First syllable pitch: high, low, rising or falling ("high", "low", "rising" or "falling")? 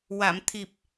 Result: low